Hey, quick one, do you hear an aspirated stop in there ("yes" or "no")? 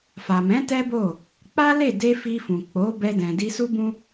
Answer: no